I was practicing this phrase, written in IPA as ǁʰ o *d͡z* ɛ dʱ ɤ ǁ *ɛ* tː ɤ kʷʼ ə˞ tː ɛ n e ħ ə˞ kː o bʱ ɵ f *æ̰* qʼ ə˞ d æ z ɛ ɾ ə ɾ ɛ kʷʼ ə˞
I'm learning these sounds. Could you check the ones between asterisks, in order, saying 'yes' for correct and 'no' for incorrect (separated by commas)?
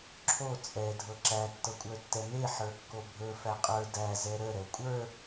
no, no, no